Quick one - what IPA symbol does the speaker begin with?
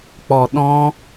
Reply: k͡p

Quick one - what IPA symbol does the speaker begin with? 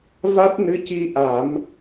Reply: v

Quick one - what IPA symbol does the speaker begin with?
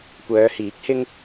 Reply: kʷ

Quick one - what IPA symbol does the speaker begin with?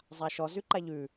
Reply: zˤ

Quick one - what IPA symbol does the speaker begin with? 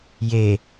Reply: j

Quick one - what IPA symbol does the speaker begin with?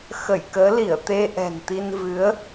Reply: x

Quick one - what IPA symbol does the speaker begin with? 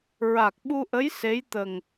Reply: ɹ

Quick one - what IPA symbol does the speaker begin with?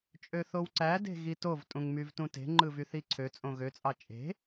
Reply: t͡ʃʼ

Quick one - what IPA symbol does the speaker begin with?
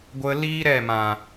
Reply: ɡʷ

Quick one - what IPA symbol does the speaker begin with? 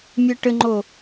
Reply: mʲ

